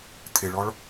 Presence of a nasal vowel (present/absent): absent